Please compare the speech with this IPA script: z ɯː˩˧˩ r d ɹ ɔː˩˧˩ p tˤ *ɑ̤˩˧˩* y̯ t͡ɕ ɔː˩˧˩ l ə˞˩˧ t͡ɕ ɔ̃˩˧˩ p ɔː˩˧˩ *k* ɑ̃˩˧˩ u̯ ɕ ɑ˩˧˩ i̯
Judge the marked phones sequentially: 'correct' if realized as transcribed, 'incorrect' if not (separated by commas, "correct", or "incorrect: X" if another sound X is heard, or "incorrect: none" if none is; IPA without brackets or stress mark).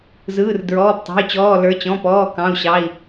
correct, correct